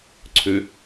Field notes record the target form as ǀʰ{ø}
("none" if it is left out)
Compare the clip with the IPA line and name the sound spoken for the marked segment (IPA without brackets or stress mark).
ø